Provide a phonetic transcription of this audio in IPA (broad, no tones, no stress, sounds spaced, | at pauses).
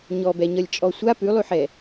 ɲ ɔ b ɛ ɲ ʌ lʲ t͡ʃʼ ɔ sʷ a p ʉ lˠ ʉ ħ ɛ